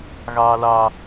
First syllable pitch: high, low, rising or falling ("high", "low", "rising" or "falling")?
high